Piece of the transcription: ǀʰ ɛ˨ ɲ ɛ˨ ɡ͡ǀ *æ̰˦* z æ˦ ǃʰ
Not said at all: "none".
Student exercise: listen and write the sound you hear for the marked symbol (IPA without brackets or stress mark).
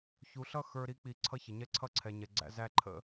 æ̰˦